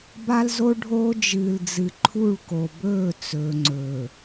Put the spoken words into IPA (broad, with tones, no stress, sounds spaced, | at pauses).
b a˦ l z o˦ ɖʱ oː˦ d͡ʒ ɨː˨ l d͡z ɨ˨ ǃʰ u˦˨ ɭ k o˨ b ɵː˦˨ t͡s ɵː˨ ŋ͡ǀ ɵː˨